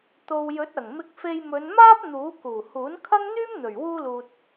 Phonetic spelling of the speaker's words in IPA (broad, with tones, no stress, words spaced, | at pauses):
t̪o˧w jɵ˨˥t̚ɐ˨˩ŋmɪ˧k̚fe˧j mɵ˨˧nmaː˥p̚ n̪uː˨˥ kuː˨˩huː˨˥nkʰɐ˥ŋ n̪yː˥mn̪ɵ˨˩ɥ wuː˥luː˧t̚